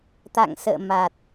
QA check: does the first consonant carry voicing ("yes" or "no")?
no